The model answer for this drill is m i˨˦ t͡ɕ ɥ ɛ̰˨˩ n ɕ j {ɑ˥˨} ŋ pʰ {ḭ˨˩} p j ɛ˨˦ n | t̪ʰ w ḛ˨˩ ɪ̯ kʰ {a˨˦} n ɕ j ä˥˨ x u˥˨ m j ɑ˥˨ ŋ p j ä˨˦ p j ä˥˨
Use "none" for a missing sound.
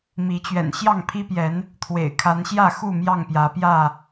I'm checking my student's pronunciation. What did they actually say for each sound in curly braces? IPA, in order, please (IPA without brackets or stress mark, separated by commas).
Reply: ɑ˥˨, i˦, a˨˦